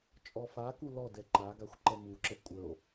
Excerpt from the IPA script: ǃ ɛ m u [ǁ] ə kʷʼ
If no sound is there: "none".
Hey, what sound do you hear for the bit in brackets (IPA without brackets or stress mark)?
ǁ